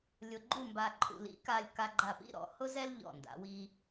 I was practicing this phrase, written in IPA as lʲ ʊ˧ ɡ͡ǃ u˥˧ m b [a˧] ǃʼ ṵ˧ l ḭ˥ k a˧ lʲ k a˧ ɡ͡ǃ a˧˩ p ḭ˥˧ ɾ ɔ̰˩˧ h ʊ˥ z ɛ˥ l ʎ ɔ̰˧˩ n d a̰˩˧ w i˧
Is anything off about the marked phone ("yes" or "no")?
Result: no